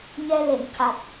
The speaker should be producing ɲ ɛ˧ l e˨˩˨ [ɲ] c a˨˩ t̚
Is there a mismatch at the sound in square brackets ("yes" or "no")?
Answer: yes